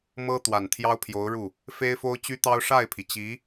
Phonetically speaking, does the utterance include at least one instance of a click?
no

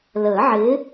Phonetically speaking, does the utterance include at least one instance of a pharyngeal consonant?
yes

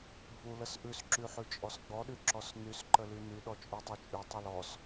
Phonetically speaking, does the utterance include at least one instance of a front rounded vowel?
yes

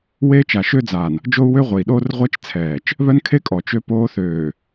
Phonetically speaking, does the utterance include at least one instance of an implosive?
yes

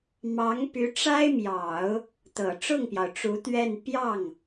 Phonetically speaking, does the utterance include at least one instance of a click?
no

